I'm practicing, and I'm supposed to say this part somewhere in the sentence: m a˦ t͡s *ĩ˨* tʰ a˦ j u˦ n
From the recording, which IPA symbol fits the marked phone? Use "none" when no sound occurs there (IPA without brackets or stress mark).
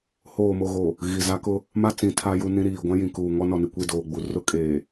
ĩ˨